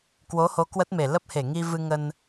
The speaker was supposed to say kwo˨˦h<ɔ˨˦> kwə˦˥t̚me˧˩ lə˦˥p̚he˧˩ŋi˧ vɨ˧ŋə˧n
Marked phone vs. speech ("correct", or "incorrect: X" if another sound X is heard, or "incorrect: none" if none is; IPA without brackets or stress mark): incorrect: o˨˦